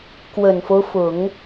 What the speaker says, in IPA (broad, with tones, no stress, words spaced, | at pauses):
kwə˨˩nfo˦ʊ̯fʊ˨˩˦ŋ